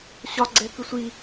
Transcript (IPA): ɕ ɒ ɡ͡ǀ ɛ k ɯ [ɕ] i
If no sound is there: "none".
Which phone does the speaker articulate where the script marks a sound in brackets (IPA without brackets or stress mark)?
sʷ